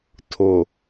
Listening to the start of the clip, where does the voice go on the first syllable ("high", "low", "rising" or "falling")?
low